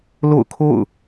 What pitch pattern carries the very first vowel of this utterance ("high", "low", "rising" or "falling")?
falling